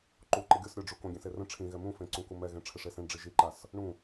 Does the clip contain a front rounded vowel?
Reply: no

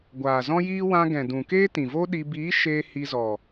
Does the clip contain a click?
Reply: no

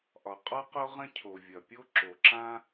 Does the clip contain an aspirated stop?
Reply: yes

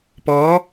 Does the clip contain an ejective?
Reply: no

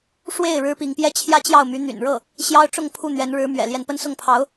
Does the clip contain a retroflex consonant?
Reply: yes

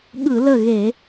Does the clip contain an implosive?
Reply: yes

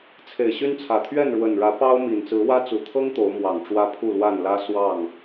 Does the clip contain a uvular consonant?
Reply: no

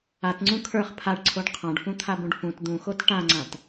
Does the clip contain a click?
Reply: yes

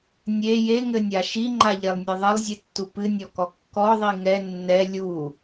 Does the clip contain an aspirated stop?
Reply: no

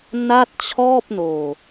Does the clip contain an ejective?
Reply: no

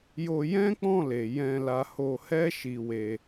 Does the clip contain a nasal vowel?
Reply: yes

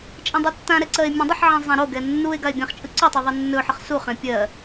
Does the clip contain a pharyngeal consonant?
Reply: yes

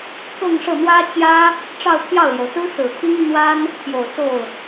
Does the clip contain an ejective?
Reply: no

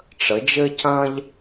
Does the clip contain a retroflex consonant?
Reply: yes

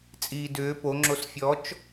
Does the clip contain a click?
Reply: yes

